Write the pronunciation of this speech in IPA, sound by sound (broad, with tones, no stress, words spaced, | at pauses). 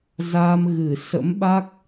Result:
za˧mɣɨ˧˩ sə̰˧˥mɓa˦˥k̚